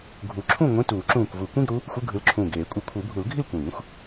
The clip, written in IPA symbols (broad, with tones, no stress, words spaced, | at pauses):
ɡʱu˨˩˦ǁʰũ˥˨ŋʷĩ˧˥˧ tuː˨˩˦ǁũː˧˩kʷ vu˨˩˦kʷĩ˧˥˧ɡɾu˨˦ | xʷɯ˧˥˧ɡʱɯ˨˦lǁʰũː˧˩ ɡeː˨˩˦kʷʼɯ˨˩˦kʷʰɯ˨˩˦bʱu˨˩˦l ɡʱi˥˨lkʷĩː˨˩˦xʷ